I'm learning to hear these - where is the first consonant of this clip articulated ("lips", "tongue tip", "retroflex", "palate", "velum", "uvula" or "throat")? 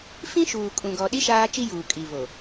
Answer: lips